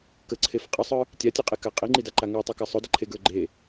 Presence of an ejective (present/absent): present